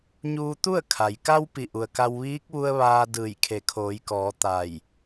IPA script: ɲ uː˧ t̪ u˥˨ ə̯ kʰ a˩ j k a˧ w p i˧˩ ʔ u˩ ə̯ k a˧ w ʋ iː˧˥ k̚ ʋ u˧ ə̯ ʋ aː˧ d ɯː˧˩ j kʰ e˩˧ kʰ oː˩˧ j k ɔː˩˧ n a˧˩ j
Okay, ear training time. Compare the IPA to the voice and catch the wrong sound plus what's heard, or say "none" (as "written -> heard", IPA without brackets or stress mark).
n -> t̪